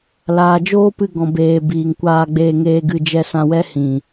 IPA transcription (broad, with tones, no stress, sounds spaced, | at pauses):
l aː˨ d͡ʒ oː˦ p ɨ˧ ɡ ɔ̃˨ b eː˨ b iː˨ ŋ kʷ aː˧ ɡ͡b eː˧ ŋ eː˧ ɡ ɨ˧ d͡ʒ ɛ˧ s ã˧ w ɛ˦ h ĩ˨